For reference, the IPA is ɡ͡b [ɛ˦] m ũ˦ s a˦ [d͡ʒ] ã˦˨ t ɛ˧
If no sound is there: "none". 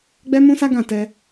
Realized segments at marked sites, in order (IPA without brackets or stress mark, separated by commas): ɛ˦, ɡ